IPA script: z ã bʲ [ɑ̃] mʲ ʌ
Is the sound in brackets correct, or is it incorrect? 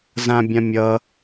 incorrect